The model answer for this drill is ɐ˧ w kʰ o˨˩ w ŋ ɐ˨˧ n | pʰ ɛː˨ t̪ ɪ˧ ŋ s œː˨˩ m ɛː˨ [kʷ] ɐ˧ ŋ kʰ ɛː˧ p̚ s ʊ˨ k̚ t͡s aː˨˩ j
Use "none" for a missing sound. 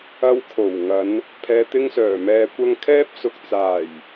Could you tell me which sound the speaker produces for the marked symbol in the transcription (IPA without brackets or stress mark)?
kʷ